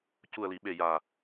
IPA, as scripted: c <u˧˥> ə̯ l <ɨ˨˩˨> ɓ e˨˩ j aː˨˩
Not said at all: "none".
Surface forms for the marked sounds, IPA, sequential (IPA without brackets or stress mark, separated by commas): u˨˩, i˨˩˨